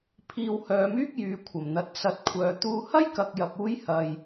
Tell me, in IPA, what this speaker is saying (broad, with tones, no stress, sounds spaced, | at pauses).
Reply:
pʰ iː˧ w h œː˨˧ m yː˥ k̚ j yː˨ kʷʰ ɐ˨˩ m n̪ ɐ˨˥ t̚ s ɐ˨˥ t̚ kʷʰ œː˨˧ t̪ uː˥ h ɐ˥ j k ɐ˨ k̚ j ɐ˨ p̚ uː˧ j h ɐ˨ j